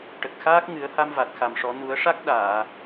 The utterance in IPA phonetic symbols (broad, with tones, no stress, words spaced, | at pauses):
ʈə˨˩k̚xaː˦˥k̚ ŋɨ˨˩˦ə̯ha˧mva˨˩t̚ xa˨˩mʂɔ˨˩˦ nu˨˩˦ə̯ʂa˦˥k̚ ɗaː˨˩˨